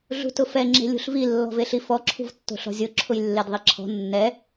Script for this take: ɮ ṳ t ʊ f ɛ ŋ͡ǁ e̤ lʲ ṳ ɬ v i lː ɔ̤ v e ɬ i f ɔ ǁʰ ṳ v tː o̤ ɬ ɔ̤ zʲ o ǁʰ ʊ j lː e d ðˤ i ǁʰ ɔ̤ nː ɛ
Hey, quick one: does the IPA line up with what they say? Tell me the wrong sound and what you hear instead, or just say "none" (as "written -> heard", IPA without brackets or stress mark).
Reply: none